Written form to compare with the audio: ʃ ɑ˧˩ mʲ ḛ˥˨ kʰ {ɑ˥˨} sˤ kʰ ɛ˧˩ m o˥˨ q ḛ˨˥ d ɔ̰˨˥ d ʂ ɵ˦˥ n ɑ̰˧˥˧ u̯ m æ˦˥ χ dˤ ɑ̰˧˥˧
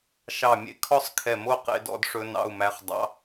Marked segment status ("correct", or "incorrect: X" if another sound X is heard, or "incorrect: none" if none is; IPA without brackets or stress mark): incorrect: ɔ˥˨